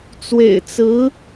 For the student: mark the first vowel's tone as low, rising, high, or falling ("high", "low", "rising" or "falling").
low